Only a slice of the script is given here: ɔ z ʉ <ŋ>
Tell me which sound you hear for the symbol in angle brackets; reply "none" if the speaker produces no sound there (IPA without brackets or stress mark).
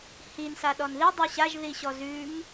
ŋ